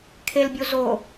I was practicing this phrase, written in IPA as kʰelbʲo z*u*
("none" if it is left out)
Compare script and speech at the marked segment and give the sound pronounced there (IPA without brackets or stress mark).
o